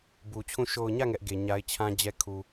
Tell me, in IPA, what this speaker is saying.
b u˨ t͡ɕʰ ũ˦˨ ʃ o˨ ʊ̯ ɲ ä˦˨ ŋ ɛ˦ ʔ ɡ e˨ ɲ a˦ ɪ̯ t͡ɕʰ ã˦ d͡ʑ ɛ˦ kʰ u˨

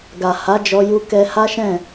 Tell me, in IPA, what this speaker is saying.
ɡ a˨ h a˨˦ d͡ʒ ɔ˧ j u˧ k ɛ˧ h a˦ ʃ ɛ̃˦˨

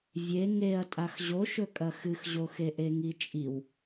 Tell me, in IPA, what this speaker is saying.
vʲ e ŋ e ɐ̯ tʼ a x ʑ o ʃ ɵ kʼ ɐ x ɨ x ʑ o x e ʔ e ŋ i t͡ʃʼ i w

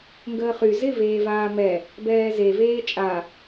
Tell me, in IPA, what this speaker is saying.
ŋ ɡ əː χ y z ɪ v eː v aː m ɛ | b ɛː z e v eː t͡ʃʼ a

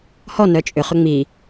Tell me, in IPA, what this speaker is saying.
h ɔ n œ t͡ʃʼ ʏ χ ʏ ŋ͡m i

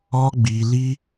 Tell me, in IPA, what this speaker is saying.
ɔ˦ ɡ͡b i˧ l i˦

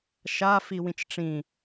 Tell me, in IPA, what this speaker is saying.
ʃ a f i w ĩ t͡ʃ ʈ͡ʂ ĩ

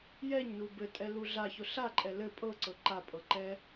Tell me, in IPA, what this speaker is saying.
j ɛ ɲ n u b ɘ tʼ ɛ l u ɮ a ç ʊ ɬ a ǃʼ ɛ l ɘ pʼ ɤ ǀ ɤ ǃ a pʼ ɤ ǃ ɛ

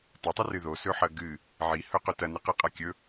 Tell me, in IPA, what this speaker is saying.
tˤ ɵ tˤ ɨ r ɨ ð o s ɵ ħ ɐ ɡ ɨ | ʕ i h ɵ q ɵ t ɐ n ɨ q ɨ qʼ a kʲ ɵ

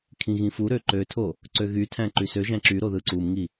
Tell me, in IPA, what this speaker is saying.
kʰ ĩ ɣ ĩ f u ɾ ø ǃ ø tʰ o | ǀ ø ɣ y tʰ æ̃ ǃ y s ø ʒ æ̃ ǁ y ɾ o ð ɯ ǀ u m ŋ i

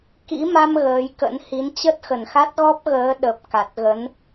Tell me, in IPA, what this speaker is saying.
k ḭ˧˥ m a˧ m ɣ əː˨˦ j k ə̰˧˥ n h i˨˦ n t͡ɕ ə˦˥ t̚ x ə˨˩ n x a˦˥ t̚ ɣ ɔ˦˥ p̚ ɣ əː˨˦ ɗ ə˨˩ p̚ k a˨˩ t̚ ɣ ə˨˦ n

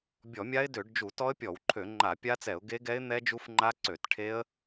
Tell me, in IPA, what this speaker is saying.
bʲ ɔ˧˩˧ mʲ a˦˥ ɪ̯ d ø˧˩˧ ɖ d͡ʒ u˧˩˧ t ɔ˦˥ ə̯ pʲ ɔ˧˩˧ w ǃʰ ø˧˩˧ ŋ͡ǃ a˧˩˧ pʲ a˦˥ t͡s ɛ˧˩˧ ʊ̯ ɡ e˦˥ ɡ ɛ˦˥ ɪ̯ n̪ ɛ˦˥ d͡ʒ u˦˥ f ŋ͡ǃ a˦˥ ǀ ø˧˩˧ t ʈʰ e˦˥ ə̯

